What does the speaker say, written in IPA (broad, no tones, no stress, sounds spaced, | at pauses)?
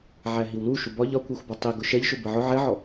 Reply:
ʕ æ ɦ i w l u ʃ u b ɒ ʎ ɒ kʷ ɛ xʷ b ɒ tˤ i ɡ ʊ ʃ ɛ ʎ ʃ ʊ b ɜ ʕ ʊ ʕ ɛ ʕ ɔ